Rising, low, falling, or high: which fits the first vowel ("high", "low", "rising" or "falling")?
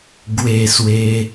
falling